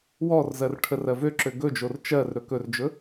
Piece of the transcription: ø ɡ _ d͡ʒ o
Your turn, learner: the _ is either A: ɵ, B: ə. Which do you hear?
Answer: A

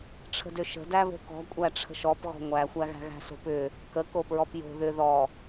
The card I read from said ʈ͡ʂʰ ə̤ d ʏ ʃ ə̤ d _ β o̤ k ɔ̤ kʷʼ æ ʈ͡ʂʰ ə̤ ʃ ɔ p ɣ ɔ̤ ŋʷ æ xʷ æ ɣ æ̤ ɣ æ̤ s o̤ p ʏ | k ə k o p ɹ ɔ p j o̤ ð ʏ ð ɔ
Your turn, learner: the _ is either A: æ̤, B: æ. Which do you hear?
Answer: B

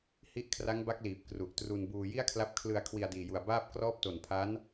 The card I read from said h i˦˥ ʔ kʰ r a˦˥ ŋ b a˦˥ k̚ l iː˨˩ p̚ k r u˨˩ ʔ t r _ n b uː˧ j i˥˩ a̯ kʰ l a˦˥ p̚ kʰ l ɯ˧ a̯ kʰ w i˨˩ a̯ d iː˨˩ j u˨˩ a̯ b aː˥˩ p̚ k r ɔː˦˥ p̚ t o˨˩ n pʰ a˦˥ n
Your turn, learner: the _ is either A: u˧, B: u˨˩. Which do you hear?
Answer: A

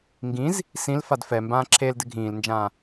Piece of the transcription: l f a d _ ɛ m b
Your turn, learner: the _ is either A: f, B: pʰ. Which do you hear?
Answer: A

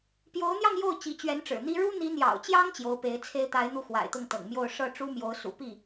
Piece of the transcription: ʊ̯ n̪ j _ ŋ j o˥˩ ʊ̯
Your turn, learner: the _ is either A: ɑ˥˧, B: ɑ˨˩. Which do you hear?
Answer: A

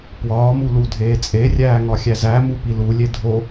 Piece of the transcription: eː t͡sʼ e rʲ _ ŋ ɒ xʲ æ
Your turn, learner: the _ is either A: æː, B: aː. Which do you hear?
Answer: A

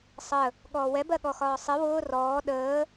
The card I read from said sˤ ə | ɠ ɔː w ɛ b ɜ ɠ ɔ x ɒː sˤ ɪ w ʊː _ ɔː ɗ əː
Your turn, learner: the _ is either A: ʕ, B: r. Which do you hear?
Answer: B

